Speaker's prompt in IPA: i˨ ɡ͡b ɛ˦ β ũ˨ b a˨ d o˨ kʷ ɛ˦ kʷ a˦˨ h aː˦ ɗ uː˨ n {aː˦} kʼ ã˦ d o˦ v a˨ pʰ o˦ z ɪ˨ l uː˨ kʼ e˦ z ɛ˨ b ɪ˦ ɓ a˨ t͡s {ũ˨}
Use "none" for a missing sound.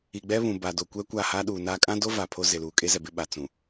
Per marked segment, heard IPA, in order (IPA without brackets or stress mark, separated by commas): aː˦, ũ˨